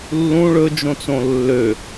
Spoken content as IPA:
lːũ ɭɵd͡ʒõt͡sõ lːø

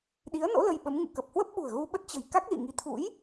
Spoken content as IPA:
ɗi˨˦ə̯no̰˧˥ lə˧jɓə˨˦mŋṵ˧˨ kə˨˩p̚hwə˦˥p̚ɓṳ˨˩ə̯ ɣu˧ɓə˦˥t̚ t͡ɕə̤˨˩j ka˦˥k̚lḭ˧˨ŋi˨˦ t̪ʰṵ˧˥j

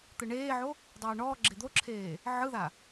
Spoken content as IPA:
t̪ɯɳeːʕo | dˤuːɳɔːɡ͡ǁe d̪oǁʰeː | ʕɯða

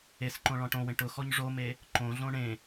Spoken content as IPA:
esǃõ ɭɔ̃ʈõwẽ ʈʊxɔɲ ʐome | ǃõɮõ ɳẽ

